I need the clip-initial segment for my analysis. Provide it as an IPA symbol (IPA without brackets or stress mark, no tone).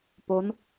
p